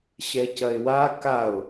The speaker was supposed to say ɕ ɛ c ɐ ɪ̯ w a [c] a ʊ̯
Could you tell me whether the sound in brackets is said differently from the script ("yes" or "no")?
yes